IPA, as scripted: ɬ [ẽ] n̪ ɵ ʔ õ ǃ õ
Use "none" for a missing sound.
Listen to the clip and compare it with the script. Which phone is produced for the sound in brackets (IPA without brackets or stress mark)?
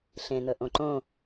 ẽ